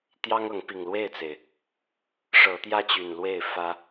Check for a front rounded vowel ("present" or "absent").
present